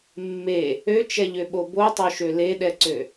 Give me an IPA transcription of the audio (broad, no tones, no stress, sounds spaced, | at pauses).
mː e | ø t͡ʃ ɛ ʎ ø ɓ o b o tˤ o ʃ ø l e ɗ ɛ ǀ ø